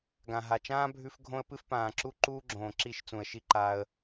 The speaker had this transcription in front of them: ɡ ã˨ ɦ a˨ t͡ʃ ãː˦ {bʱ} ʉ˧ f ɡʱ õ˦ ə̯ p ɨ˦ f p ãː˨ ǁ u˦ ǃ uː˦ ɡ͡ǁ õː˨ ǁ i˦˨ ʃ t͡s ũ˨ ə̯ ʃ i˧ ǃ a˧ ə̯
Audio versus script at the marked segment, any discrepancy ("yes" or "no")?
no